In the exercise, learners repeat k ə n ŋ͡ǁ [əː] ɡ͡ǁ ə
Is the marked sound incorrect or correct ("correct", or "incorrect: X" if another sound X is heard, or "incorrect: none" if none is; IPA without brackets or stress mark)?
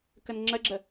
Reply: incorrect: ə